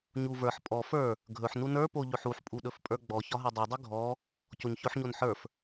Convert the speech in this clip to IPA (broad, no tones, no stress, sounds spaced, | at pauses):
ɲ u v ə˞ ħ pʼ ɔ f ə˞ | ɡʱ ɵ ħ n u n ə˞ p o ʎ ɵ ħ u ħ pʼ u ɗ ɵ f pʼ ə˞ ɡ͡b ɔ ç ɒ ɦ ə˞ dˤ o dˤ ɵ ɡʱ ɔ | c o ɲ ç ɵ ħ ɲ o n ħ ə˞ f